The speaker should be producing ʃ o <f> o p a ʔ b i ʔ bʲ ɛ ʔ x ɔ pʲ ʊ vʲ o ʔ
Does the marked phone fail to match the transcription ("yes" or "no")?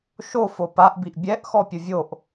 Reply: no